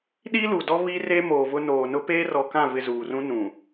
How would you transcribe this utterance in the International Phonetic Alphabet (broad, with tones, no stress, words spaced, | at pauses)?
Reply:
ɗi˦lu˨dɔ˦ βi˦re˦ moː˨vʊ˦ noː˨nʊ˦ peː˦rɔ˨kã˦˨vɪ˨ zuː˨rũ˦nũ˨